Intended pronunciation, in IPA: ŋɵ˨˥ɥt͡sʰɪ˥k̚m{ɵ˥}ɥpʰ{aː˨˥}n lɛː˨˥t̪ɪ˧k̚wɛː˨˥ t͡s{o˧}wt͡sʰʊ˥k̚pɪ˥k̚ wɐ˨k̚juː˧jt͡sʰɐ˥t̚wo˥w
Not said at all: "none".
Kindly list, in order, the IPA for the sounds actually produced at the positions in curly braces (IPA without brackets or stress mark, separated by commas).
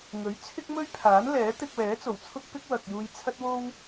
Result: ɵ˥, aː˨˥, o˨˩